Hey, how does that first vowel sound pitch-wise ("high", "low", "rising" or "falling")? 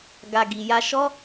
low